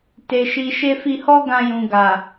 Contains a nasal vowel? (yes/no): yes